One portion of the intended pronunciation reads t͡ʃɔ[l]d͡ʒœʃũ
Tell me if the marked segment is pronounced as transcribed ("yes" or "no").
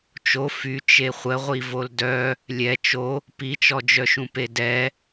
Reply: no